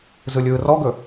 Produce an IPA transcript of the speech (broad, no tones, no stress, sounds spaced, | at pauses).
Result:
z ɯ lʲ ɯː r ɔ ɡ ɵ